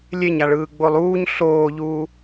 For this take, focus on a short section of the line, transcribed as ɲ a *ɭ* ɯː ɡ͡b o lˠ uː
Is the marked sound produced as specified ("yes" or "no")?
yes